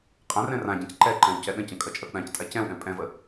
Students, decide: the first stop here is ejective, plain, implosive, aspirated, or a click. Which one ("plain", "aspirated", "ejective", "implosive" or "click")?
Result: ejective